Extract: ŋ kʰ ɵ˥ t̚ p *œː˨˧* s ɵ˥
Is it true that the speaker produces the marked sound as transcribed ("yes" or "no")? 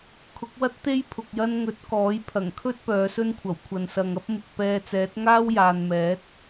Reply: yes